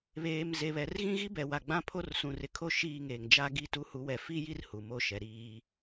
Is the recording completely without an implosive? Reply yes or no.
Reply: yes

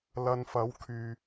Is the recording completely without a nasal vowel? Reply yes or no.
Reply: yes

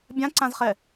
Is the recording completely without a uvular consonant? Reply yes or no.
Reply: no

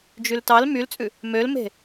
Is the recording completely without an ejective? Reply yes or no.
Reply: no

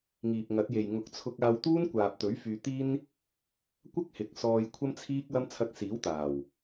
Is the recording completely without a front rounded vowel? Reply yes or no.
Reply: no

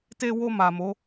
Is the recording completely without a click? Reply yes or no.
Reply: yes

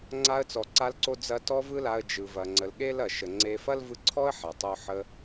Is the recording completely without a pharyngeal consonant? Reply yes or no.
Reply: no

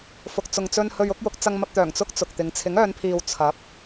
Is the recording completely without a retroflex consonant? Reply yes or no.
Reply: yes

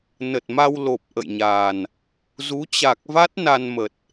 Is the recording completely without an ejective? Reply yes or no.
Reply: yes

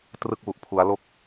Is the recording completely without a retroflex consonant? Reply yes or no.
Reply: yes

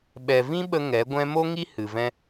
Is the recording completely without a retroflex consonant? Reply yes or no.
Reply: yes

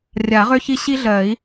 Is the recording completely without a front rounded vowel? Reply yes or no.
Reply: no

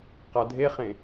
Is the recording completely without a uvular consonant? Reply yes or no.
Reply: no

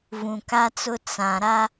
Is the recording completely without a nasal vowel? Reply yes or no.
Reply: no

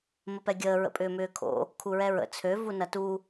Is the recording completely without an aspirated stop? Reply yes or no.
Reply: no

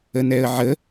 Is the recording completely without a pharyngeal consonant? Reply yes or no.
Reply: no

